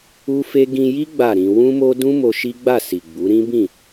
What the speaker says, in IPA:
u˦ f e˦ ɡ ĩ˧ j i˦ ɡ͡b a˦˨ ɾ ĩ˧ w ũ˦ m o˦ d ũ˦ m o˧ ʃ i˦ ɡ͡b a˦˨ s i˨ ɡ͡b u˨˦ ɾ ĩ˦ b ĩ˦˨

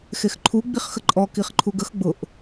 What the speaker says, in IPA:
x e x ǃʰ u ɡ͡b i χ x ə ǃʼ ɔ k i χ ǃʰ u ɡ ə x ɡ͡b ʊ ʔ

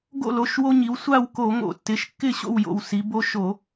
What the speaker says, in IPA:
ɡ o̰˥˨ l o˩˧˩ ʃ w o˦ ɲ i˩˧ w sʷ a˥˨ w k o˧˩˧ ŋ o̰˧˩˧ tː ɪ˩˧˩ ʃ kː ɪ˥˨ ɕ o̰˥˨ w j o̰˧˩ w s i˩˧ b o˦ ʃ o˧˩˧

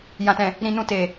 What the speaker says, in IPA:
j ã˨ t ɛ̃˨ | ɾ ĩ˧ n ũ˧ t e˨

